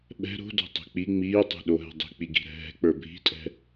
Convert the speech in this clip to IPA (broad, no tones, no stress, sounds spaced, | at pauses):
ɓ ɛ̤ ɾ o̤ d o̤ tˤ e̤ k͡p i ŋ͡m iː tˤ e̤ ɗ o ɦ ɛ̤ dˤ i̤ k͡p i ɡ i̤ ɾ ɛ̤ ɦ ɛ̤ k͡p ə˞ bʱ i̤ tʼ ɛ̤